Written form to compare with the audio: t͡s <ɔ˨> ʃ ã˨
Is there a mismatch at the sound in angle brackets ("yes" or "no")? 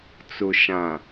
yes